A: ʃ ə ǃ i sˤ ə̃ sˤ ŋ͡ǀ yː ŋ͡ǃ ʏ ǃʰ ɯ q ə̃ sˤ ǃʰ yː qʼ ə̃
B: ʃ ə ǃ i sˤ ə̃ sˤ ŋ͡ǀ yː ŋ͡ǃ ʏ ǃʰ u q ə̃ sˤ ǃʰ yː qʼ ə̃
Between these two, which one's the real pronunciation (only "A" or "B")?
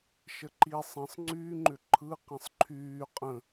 A